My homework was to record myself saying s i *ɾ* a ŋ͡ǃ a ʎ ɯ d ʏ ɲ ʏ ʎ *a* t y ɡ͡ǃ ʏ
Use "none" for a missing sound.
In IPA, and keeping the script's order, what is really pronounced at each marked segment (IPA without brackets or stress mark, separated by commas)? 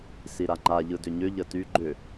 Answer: ɾ, ə